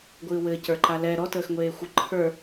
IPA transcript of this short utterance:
ɡʷ ɨː w ɘː c ə˞ ǃ a l ɛ ɾ ɔ t əː x ŋʷ eː xʷ ɨ ǃʰ ə˞

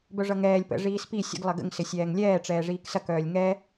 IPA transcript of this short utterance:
b œ ʐ ʌ ŋ ɛː lʲ p ə̰ ʐ iː s p i sʲ ə̰ ɡ lˠ ɐ ɡ ə̰ ŋ s ɪ sʲ ɛː ŋ lʲ ɛː ʈ͡ʂ ɛː ʐ iː k s ɐ k œː lʲ ŋ ɛ

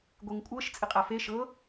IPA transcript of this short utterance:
ɡʷ e ŋ kʷʼ ɤ ʃ t͡sʼ ɪ qʼ a f e ʃ ɤ

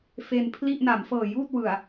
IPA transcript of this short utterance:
f e˧ n pʰ l i˥˩ ʔ n a˩˦ m f ɤː˨˩ j uː˥˩ t̚ w ɯ˨˩ a̯

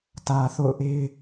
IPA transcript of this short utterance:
t ä˨ θ o̰˦˨ ʊ̯ ʔ e˦ ɪ̯

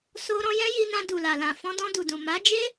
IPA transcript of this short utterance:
s o˦ ɾ ɔ̃˧ j ɛ̃˦ j i˧ n ã˧ d u˨ l a˨ l ã˨ f ɔ̃˧ d ɔ̃˧ d u˨ d ũ˨ m a˨˦ d͡ʒ e˦

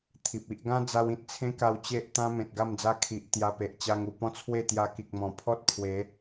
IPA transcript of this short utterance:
t̪ʰ i˨ p̚ i˦ ʔ ɡ ã˦ d͡z a˧ w ĩ˨ t̚ t͡sʰ ẽ˦ k a˧ w t͡ɕ e˦ ʔ t̪ ã˦ m ẽ˨ t̚ ɡ a˥˧ m d͡z a˦ kʰ i˨ ʔ t̪ j a˧ p e˨ ʔ t͡ɕ a˧ ŋ u˨˩ p ɔ̃˦ t͡sʰ w e˥˧ t̪ j a˧ k i˨ k̚ m ɔ̃˨˩ pʰ ɔ˦ t̚ pʰ w e˨˦

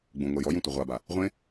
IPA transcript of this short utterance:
ɡ͡b ũ ŋʷ ɛ j ɔ j ũ tʷ ɨ ʁʷ a b a | ʁʷ ẽ

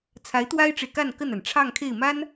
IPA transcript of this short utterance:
t͡sʰ a˧˥ ɪ̯ t̪ w a˥ ɪ̯ ʈ͡ʂ e˨ ɪ̯ k a˥˧ n k ə˥˩ n a˩ n ʈ͡ʂʰ ɑ˥˧ ŋ kʰ e˥˩ ɪ̯ m a˥ n

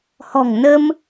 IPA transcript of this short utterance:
h ɔ̤˨˩ ŋ n ə˧ m

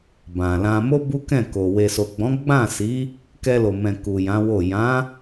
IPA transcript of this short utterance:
b ã˨ l ã˧ m o˦ b u˦ k ɛ̃˦˨ k o˨ w e˨ s o˨ ɡ͡b ɔ̃˨˦ ɡ͡b ã˦˨ s i˨˦ | k ɛ˧ l o˨ m ɛ̃˨ k u˨ j ã˨˦ w o˦˨ j ã˨˦

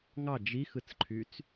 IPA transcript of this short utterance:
ŋ ɑ d͡ʒ i x ɯ t͡s ǃʰ y t͡s

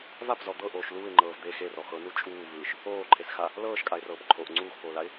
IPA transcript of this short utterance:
v a p z ɔ d̪ ɤ ʔ oː ʃ l uː ɪ̯ ŋ͡ǃ ɤː v d̪ e x e r ɔ x ɤ n u t͡ʃʼ uː v ɯː ʃ | oː ǃʰ e s x a | l ɤː ʃ kʼ a ɪ̯ r ɤː p ǃʰ o ʔ ŋ͡ǀ uː x p oː l a ɪ̯

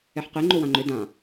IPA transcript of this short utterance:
ɛ ħ q e ŋ͡ǃ o w ã ŋ͡ǃ ʏ d ã

